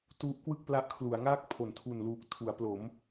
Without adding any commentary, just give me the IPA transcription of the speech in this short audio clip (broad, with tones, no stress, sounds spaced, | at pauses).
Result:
t u˦˥ ʔ k w ɯ˥˩ k̚ p l a˦˥ ʔ kʰ l u˩˦ a̯ ŋ aː˥˩ k̚ pʰ o˩˦ n tʰ u˨˩ n l uː˨˩ k̚ tʰ u˩˦ a̯ p l o˩˦ m